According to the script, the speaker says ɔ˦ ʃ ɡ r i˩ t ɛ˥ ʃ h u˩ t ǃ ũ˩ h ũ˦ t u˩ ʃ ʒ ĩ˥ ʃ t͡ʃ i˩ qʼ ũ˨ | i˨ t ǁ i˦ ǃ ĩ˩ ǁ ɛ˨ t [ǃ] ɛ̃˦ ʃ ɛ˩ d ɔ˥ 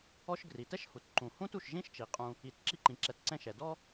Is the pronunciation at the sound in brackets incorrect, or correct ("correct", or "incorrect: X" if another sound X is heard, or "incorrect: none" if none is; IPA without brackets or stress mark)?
incorrect: ǀ